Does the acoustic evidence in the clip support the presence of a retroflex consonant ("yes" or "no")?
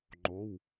no